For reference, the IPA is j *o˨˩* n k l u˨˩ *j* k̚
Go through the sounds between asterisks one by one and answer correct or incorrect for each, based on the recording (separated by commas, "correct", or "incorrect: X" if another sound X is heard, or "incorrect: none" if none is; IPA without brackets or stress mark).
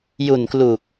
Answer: incorrect: u˨˩, incorrect: none